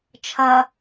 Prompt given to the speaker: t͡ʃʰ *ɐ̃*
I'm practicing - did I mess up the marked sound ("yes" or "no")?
yes